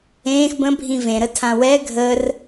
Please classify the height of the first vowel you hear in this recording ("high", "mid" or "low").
mid